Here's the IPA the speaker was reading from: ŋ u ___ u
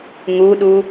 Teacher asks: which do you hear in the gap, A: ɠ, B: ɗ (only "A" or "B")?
B